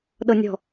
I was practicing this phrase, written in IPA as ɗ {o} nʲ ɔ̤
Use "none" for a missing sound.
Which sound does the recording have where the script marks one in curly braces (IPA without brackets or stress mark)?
ɤ